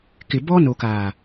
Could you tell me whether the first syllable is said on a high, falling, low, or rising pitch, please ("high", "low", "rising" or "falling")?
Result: low